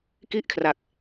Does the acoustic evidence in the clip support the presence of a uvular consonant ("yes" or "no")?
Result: no